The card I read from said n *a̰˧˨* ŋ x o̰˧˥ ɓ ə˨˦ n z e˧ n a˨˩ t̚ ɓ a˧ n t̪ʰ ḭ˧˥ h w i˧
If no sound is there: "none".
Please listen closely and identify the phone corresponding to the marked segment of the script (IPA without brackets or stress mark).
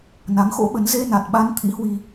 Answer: a˨˦